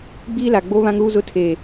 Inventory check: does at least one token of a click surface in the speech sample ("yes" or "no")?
no